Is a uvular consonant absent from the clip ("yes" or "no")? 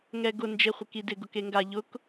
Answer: no